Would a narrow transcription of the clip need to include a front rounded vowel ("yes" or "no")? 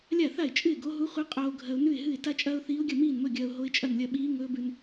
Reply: no